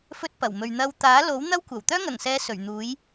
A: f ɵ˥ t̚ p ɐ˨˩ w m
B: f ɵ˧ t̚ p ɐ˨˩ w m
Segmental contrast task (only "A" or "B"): A